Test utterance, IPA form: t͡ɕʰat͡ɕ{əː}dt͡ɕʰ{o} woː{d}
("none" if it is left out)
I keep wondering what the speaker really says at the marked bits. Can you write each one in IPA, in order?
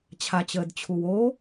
əː, u, none

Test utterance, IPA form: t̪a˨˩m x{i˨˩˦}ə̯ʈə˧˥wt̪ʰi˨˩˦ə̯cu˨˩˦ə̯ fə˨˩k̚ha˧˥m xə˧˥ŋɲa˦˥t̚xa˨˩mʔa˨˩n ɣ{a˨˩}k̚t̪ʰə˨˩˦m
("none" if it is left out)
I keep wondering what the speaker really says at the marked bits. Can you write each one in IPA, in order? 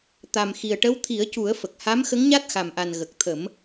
i˨˩, ə˨˩

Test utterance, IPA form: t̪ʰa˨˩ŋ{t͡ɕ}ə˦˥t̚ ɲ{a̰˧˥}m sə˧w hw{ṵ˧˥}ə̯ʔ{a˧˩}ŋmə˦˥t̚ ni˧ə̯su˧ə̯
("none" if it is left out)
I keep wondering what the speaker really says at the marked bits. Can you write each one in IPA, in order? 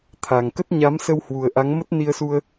k, a˨˦, u˨˩, a˨˦

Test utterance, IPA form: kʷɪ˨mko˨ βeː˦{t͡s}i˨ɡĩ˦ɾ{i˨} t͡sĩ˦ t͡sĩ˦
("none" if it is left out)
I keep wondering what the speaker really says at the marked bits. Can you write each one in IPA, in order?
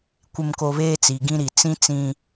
t͡s, i˨

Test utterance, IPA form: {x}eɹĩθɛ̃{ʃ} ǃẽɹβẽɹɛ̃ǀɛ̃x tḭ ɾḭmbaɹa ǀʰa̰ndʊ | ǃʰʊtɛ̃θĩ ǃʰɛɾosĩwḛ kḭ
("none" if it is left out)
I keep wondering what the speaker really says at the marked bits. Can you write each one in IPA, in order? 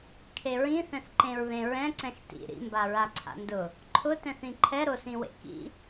kʰ, θ

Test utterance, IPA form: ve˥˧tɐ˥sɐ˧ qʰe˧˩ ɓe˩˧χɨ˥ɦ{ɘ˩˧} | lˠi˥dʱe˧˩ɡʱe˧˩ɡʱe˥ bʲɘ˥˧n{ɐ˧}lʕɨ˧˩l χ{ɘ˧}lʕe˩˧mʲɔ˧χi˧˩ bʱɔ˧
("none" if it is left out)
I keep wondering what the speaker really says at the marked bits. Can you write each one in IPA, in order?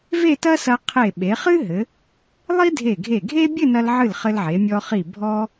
ɘ˩˧, ɐ˧, ɘ˧

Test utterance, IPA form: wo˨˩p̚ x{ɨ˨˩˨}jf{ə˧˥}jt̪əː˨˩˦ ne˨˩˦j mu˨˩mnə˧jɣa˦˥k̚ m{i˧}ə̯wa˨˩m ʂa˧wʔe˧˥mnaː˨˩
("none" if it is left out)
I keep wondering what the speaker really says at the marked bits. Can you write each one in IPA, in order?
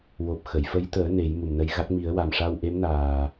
ə˨˩˨, ə˧˥, i˨˩˦

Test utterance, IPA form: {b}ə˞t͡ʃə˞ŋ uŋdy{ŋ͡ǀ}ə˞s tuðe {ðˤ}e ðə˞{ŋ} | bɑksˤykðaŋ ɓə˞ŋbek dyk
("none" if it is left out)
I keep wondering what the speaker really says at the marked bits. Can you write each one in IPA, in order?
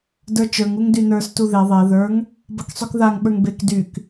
d, n, ðˤ, ŋ

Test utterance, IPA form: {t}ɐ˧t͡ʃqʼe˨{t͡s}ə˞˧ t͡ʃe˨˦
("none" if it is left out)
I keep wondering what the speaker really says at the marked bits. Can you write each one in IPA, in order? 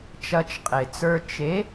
t͡ʃ, t͡s

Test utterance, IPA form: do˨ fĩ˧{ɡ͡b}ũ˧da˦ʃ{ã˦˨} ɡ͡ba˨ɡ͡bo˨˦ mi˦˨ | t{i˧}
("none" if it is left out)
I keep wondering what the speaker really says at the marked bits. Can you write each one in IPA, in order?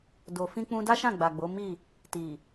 k͡p, ã˦˨, i˨

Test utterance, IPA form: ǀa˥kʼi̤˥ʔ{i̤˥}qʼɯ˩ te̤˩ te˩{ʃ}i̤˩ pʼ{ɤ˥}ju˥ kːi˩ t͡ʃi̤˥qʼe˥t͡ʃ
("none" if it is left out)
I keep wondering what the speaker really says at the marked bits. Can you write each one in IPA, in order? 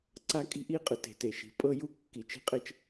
i˥, ʃ, ɤ˥

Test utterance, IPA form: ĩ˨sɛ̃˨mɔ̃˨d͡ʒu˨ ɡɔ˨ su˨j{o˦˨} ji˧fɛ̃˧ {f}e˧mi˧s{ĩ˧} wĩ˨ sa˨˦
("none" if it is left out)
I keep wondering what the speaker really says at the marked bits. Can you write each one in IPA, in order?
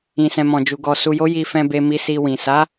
o˨˦, b, i˧

